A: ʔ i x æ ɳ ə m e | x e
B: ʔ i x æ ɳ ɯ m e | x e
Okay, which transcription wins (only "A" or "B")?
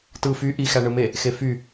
B